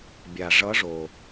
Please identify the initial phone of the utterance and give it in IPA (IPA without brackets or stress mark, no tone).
bʲ